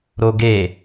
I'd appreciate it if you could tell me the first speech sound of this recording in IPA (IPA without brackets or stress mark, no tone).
ɾ